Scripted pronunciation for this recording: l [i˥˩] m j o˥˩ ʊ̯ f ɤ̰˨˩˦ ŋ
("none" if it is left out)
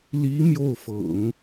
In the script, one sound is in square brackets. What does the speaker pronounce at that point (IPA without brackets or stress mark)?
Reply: i˧˥